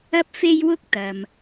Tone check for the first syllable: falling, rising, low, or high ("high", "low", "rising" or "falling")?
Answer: high